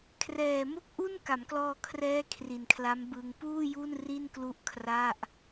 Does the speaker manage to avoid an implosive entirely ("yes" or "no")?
yes